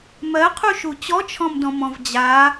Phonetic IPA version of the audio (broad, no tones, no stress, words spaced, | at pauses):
mɜqʰuʃu t͡ɕɔt͡ʃʰɔ̃mdɔ̃mɔ̃v d͡ʑa